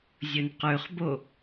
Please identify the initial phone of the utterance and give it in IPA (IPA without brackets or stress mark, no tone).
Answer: zʲ